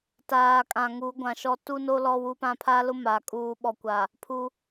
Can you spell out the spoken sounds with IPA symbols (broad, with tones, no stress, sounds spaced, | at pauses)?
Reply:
t aː˨ kʼ ã˨ ŋ u˨˦ ɡʷ ã˨ ʃ ɔ˦ t u˦ n o˦ l ɔ˦ w u˦ p ã˦ pʰ a˦ l ʊ˦ m a˨ kʼ uː˦ ɓ ɔ˨ kʷ a˨ | pʰ u˦